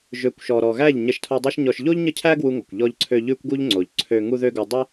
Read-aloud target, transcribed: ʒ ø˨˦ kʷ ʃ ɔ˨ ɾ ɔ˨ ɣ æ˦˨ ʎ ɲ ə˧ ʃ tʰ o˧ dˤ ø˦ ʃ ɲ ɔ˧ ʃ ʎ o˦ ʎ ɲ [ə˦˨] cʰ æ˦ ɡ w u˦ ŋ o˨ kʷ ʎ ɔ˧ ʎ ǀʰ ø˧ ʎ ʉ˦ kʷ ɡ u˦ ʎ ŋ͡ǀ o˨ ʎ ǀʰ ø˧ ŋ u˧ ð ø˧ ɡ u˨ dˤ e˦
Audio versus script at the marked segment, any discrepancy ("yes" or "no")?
no